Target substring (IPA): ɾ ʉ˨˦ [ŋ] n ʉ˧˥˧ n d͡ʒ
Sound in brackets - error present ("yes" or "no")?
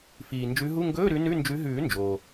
yes